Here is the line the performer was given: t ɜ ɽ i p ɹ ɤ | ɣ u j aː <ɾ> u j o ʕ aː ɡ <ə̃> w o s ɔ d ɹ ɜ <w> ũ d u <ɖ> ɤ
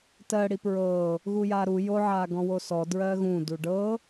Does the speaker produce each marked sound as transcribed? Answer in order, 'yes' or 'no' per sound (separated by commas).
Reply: yes, no, no, yes